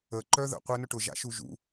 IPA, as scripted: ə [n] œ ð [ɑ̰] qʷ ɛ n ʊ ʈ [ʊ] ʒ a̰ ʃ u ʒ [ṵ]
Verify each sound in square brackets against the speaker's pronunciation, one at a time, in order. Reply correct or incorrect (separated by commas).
incorrect, incorrect, correct, correct